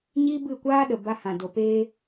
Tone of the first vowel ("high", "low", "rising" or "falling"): high